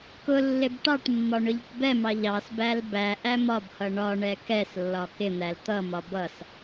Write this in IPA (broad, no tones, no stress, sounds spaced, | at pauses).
k ʊ lː ɪ b ʈ ɑ ʈ mː ɒ ɳ ʊ ʎ ɪ ʈ b ɛ m ɑ ʎ ɑ s b æ l b æ ʔ æ m ɒ b h ʌ ɳ ɒ ɳ ɛ k ɛ s lː ɒ k ɪ n̪ æ l t̪ ʌ m ɒ b ʌ s